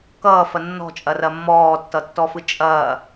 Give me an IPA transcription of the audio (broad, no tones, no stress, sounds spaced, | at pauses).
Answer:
k ʌː f ɐ nː ɔ̤ t͡ʃʼ ɐ r ɐ mː ɔː tː ʌ tː ɔ f ɯ t͡ʃʼ ɐː